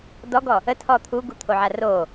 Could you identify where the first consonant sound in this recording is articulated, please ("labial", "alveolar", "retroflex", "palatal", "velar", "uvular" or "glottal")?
alveolar